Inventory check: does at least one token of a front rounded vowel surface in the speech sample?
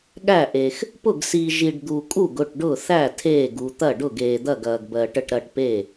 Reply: no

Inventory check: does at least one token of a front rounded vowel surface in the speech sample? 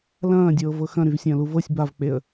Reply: yes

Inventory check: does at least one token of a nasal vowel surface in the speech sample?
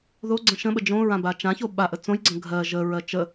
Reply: yes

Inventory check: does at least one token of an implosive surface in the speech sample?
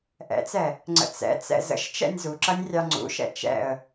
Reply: no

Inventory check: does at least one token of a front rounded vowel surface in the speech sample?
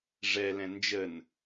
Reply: no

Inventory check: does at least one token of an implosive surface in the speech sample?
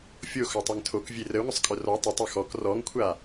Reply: no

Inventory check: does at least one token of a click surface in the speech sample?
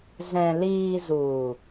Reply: no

